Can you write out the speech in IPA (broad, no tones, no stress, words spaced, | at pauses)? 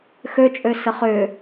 xøt͡ʃʼøsə χʏ